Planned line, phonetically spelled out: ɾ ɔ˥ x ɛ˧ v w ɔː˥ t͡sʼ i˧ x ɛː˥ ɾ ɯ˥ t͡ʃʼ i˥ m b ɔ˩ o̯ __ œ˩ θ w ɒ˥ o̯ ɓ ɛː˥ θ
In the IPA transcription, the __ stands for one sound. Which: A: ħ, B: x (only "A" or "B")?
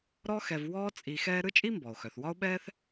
B